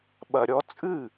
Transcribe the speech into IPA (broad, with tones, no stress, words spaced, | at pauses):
ɓɐ˨ɾʲɔ˧˥t͡sʼɨ˥˩